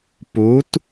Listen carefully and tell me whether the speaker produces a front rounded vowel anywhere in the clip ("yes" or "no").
no